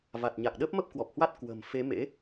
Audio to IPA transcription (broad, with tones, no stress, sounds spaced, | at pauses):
v a˨˩ t̚ ɲ a˨˩ k̚ ɗ əː˦˥ p̚ m ə˦˥ p̚ k w ɔ˨˩ p̚ h w a˦˥ t̚ k w ə̤ː˨˩ m f e˨˦ m ḛ˧˥